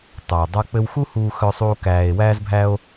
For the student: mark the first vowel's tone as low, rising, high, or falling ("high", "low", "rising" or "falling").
low